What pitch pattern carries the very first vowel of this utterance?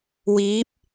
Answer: rising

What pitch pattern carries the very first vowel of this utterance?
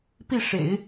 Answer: falling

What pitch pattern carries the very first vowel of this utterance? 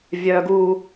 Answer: high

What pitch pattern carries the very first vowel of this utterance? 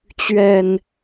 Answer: low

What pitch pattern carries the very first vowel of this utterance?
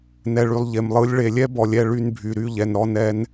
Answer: low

